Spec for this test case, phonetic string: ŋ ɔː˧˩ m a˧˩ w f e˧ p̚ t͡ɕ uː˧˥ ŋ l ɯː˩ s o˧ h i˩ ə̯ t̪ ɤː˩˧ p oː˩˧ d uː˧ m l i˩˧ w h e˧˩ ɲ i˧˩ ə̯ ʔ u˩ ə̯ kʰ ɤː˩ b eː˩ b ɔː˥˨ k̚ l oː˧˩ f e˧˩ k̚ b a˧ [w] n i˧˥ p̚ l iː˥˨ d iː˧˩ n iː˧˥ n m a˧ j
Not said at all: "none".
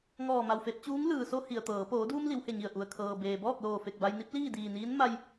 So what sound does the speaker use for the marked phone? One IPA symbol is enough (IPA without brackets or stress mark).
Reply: j